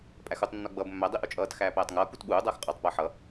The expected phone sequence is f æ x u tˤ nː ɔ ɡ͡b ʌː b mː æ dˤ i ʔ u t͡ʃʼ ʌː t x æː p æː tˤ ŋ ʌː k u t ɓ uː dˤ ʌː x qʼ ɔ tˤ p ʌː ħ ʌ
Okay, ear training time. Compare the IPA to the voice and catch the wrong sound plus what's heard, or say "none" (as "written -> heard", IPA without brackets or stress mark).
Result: f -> pʼ